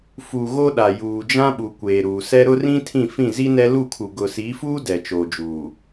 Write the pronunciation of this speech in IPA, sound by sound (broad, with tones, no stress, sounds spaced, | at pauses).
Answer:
f u˨ ɣ o˦ ɗ a˨ j uː˨ d͡ʒ ã˦ ɓ u˨ kʷ eː˨ ɾ uː˨ s ɛ˦ ɾ ʊ˦ r ĩ˦ tʰ ĩ˦˨ f ĩ˦˨ z i˦ n ɛ˦ l u˦˨ kʰ u˨ ɡ ʊ˨ s i˨˦ f uː˦ d ɛ˨ t͡ʃ oː˨ d͡ʒ uː˨